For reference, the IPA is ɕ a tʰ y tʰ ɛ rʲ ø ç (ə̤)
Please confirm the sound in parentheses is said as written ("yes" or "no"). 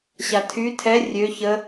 no